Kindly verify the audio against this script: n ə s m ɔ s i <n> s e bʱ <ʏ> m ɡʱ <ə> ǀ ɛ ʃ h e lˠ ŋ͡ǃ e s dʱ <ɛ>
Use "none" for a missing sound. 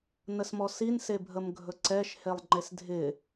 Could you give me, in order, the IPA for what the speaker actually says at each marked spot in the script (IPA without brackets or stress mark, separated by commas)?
n, ə, ɵ, ɪ